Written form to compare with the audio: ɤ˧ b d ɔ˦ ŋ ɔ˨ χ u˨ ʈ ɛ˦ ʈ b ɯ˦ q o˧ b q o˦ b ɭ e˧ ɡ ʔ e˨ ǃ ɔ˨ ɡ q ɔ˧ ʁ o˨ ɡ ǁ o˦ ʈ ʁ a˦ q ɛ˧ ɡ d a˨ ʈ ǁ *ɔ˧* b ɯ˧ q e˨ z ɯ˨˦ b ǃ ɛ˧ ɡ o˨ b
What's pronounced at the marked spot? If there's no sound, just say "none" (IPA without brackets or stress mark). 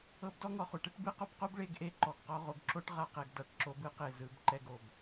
o˧